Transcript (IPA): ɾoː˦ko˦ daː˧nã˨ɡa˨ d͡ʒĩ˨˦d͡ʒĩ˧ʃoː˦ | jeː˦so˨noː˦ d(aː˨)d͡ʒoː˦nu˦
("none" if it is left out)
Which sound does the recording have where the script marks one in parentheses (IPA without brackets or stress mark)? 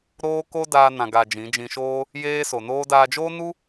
aː˧